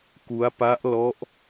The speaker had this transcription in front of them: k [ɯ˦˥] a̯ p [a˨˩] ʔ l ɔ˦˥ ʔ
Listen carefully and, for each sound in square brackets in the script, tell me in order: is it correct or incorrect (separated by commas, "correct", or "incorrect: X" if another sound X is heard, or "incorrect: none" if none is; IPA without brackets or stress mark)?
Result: incorrect: u˦˥, incorrect: a˦˥